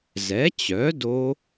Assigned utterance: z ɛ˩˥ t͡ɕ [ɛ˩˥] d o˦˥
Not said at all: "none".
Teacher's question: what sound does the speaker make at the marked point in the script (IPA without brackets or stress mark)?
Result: œ˩˥